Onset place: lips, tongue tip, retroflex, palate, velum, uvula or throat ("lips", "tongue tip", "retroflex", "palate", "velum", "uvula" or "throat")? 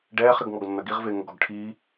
retroflex